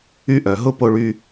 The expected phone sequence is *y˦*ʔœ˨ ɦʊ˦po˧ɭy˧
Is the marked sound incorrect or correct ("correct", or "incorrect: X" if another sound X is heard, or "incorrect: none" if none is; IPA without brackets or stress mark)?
correct